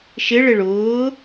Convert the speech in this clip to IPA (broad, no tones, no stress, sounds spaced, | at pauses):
ʃ ɪ ɭ ɪ ɭ ʊː